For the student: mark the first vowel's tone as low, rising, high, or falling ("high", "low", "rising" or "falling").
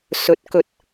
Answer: rising